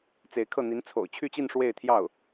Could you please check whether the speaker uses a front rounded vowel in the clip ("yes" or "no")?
yes